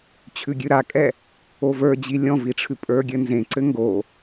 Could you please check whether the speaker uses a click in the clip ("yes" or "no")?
yes